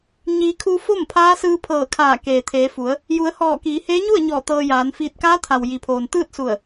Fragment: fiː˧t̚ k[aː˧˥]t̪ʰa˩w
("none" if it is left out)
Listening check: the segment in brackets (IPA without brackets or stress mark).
aː˧˥